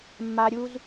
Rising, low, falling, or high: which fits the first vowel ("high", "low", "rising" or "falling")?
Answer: low